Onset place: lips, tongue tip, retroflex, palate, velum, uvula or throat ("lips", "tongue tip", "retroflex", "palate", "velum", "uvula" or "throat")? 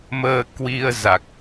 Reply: lips